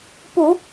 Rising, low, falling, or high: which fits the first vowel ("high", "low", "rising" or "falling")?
low